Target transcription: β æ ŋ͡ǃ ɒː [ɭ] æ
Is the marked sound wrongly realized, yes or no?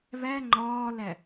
yes